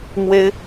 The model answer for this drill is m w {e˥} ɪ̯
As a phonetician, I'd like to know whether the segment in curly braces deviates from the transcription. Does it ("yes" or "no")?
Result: no